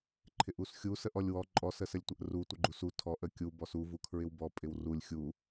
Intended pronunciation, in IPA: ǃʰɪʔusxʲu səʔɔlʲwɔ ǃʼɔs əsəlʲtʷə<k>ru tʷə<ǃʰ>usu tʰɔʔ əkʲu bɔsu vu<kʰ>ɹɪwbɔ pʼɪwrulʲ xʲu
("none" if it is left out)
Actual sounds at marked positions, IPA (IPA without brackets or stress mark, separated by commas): ʔ, ɡ͡ǃ, kʰ